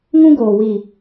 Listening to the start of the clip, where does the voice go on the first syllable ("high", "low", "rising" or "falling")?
high